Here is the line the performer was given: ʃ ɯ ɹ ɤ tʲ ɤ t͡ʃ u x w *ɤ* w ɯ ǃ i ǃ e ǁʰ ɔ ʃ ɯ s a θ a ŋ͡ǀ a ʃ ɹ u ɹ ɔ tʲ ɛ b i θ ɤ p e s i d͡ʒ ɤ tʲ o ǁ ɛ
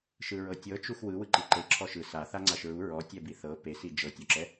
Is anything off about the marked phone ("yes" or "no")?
yes